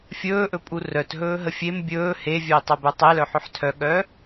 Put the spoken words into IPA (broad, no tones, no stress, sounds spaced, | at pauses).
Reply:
fʲ ɵː ʔ ɵ pʼ u r œ t ɦ ɵː ɦ ə fʲ e m bʲ ɵː h e vʲ œ i̯ tˤ o b œ tˤ e l œ ħ ɵ ħ tʰ œ ɠ œː